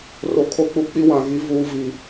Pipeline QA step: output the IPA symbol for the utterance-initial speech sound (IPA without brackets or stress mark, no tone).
r